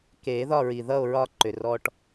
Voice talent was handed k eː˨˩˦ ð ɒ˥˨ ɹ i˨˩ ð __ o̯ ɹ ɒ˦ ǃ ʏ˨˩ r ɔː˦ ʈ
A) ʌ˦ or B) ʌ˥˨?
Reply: B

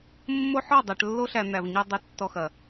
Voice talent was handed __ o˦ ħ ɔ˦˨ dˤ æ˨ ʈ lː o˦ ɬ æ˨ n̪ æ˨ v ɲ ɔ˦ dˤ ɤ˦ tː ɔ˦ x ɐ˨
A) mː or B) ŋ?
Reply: A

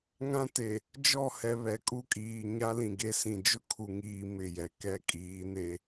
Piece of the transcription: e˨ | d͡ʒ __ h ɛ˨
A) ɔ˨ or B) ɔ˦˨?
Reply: B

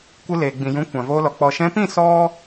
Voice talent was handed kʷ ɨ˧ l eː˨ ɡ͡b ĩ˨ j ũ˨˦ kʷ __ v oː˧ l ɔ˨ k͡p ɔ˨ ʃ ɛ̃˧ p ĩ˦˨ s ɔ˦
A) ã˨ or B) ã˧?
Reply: A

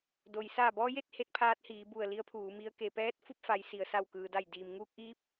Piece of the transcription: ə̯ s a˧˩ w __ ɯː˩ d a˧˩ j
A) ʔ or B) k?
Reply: B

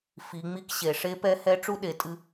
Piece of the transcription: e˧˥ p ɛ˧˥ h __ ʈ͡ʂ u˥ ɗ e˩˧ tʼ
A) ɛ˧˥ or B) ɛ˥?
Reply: A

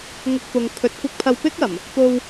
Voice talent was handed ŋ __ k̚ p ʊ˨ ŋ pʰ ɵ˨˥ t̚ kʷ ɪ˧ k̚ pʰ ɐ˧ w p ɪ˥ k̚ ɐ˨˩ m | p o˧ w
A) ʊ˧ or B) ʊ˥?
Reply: A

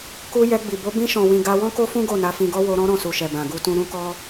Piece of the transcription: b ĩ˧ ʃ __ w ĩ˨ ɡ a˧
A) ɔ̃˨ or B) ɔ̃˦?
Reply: A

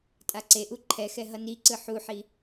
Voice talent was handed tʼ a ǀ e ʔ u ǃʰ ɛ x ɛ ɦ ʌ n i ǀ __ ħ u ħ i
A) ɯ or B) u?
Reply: A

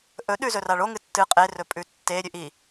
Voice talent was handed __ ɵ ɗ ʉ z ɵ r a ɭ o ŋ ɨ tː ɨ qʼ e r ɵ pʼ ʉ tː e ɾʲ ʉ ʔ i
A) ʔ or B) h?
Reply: A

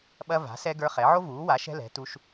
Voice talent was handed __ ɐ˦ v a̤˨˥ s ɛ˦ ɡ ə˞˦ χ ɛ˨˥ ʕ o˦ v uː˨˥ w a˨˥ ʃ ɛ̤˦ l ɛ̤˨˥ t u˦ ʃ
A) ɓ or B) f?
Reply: A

